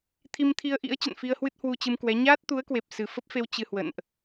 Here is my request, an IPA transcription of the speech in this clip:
t̪ʰi˧mt̪ʰi˧ə̯ʔḭ˧˥ə̯ t͡ɕə̰˧˨nfi˧ə̯hwɨ˦˥t̚ hwu˧t͡ɕɨ˧mkwɛ˨˦ ɲaː˦˥t̚t̪u˨˦ə̯kwe˨˩p̚ sɨ˨˩fə˦˥p̚fe˧w t͡ɕɨ˧hwə̰˧˨nʔ

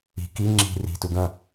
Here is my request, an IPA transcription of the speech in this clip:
i̤ ki ŋ͡ǁi̤ ri̤tu ɡɐ̃

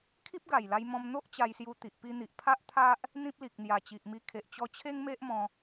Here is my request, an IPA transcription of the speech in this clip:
kʰi˦p̚ɡa˨˩jla˧j mɔ̃˧m n̪o˦ʔ t͡ɕa˧jsju˧t̪i˨ʔ pi˧n̪i˨ʔ pʰa˦ʔt̪ʰa˦ʔ | n̪ĩ˦p̚li˨k̚ n̪ja˨˩t͡ɕi˨ʔmi˧ kʰe˨ʔt͡ɕɔ˧t͡ɕʰe˦ŋ me˦ʔmɔ̃˧

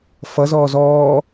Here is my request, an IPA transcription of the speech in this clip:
fʌ zɔːzɔː

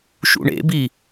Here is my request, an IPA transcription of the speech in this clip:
ʃṵɳḛbi

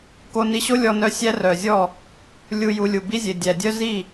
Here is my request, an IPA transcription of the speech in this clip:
ko˧ni˧ɕo˦ lʲɔ˧nœ˧ sʲæ˦rœ˨zʲɔ˦˨ | lʲu˧ ju˧lʲu˨ bi˦zʲe˨ dʲæ˨dʲœ˦zi˦˨

